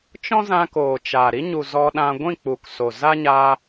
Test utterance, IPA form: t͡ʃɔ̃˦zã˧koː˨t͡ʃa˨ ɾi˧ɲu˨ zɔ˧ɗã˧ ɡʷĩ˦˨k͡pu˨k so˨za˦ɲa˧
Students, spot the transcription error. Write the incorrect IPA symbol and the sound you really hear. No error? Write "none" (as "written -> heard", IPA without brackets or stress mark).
none